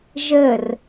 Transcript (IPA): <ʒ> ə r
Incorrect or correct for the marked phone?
correct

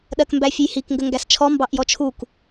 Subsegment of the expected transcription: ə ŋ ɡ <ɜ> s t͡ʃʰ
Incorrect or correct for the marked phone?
incorrect: æ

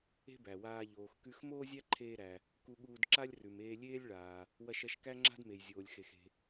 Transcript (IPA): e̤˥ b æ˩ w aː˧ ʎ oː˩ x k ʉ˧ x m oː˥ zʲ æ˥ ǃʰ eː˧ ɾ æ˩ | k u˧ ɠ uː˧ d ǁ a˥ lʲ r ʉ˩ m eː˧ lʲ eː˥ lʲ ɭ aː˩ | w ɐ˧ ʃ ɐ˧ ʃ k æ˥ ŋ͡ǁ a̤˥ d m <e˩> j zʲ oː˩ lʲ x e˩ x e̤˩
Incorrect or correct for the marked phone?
correct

